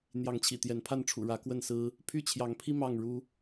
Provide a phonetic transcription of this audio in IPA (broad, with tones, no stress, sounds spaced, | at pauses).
n̪ j ɑ˨˦ ŋ t͡ɕʰ ḭ˨˩ t̪ j ɛ˨˦ n pʰ a˥˨ n ʈ͡ʂʰ ṵ˨˩ ɻ ä˨˦ k w ə˥˨ n s ɹ̩˦ | pʰ y˥˨ t͡ɕʰ j ɑ˨˦ ŋ pʰ i˦ m ɑ˥˨ ŋ ɻ u˦